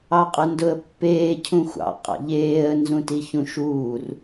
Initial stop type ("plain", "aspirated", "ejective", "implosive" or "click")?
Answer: ejective